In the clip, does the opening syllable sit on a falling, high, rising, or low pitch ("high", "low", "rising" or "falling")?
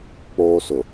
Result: high